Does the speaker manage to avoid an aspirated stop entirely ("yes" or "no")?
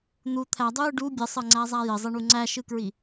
no